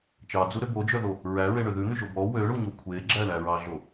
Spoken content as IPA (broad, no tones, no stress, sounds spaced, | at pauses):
t͡ʃ ɑ d͡z u ɾ ø b o d͡ʒ œ ð o | ɹ æ ɹ e ɳ ø ð ʉ n̪ y ʒ o b ɔ w ø ɳ u ɲ o kʷʰ e ɡ͡ǁ æ ɳ æ ɹ ɑ ɮ o